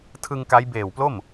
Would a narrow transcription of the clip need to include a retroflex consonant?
no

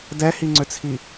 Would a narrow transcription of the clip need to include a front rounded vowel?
yes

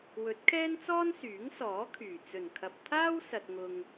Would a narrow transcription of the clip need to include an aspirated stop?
yes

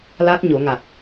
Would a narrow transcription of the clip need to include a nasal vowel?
no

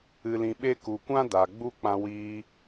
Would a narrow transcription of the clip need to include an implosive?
yes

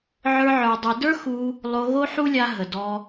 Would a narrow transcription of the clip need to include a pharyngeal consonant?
yes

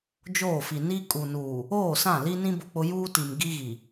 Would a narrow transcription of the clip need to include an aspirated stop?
no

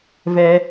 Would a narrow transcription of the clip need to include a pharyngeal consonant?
no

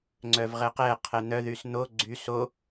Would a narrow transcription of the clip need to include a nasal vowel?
no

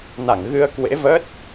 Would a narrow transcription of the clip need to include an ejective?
no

